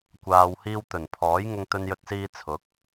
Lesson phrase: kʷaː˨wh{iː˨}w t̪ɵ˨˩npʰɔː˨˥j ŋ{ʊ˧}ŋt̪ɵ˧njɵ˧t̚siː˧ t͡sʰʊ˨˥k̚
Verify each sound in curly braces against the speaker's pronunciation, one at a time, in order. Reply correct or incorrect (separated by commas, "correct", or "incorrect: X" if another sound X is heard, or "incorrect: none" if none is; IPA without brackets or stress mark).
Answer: incorrect: iː˧, correct